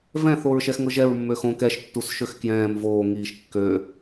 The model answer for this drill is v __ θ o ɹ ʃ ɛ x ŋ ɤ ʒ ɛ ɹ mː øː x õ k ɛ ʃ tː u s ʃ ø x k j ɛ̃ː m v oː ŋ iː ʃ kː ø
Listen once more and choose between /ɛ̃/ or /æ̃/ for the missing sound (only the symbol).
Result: ɛ̃